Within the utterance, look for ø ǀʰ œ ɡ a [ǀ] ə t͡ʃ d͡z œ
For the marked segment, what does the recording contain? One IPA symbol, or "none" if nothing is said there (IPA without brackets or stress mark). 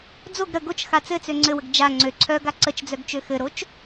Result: ǀ